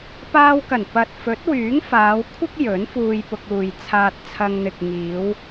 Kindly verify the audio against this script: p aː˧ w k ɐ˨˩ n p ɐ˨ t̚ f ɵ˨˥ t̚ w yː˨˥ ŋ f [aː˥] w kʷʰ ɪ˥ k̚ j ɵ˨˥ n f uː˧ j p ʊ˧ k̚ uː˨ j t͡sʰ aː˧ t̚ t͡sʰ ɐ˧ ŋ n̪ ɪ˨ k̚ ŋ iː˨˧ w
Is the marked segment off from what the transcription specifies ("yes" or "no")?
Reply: yes